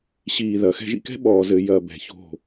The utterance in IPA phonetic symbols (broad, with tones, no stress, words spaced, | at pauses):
ɕiː˧˩ ðɐ˩˧xɛ̤˧ʒḭ˧kɛ̤˥ ɓɔː˩˧zɘ˩˧ jɐ˧˩ bɛ̤˩˧ço̤˧˩